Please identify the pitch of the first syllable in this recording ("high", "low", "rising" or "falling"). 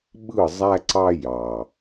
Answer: falling